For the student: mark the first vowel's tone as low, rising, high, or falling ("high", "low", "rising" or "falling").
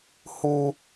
high